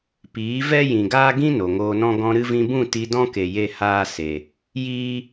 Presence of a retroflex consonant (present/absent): absent